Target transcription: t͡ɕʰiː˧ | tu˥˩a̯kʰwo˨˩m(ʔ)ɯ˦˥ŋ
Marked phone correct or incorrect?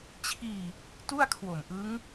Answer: correct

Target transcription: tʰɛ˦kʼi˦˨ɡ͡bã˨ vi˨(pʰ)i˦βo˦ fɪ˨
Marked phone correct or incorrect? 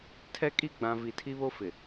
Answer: incorrect: tʰ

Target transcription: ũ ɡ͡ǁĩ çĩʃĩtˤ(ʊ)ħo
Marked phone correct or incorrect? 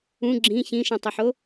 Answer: correct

